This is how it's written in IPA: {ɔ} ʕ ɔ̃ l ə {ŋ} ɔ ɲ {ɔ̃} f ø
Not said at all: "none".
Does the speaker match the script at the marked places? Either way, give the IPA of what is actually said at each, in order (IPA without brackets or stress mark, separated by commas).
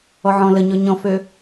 ɔ, ɲ, ɔ̃